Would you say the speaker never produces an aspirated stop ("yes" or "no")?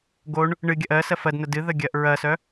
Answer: yes